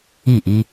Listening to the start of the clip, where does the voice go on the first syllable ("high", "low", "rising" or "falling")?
falling